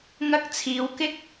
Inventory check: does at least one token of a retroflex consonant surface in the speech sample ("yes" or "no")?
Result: no